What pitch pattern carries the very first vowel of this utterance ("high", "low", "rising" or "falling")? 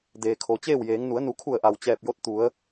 low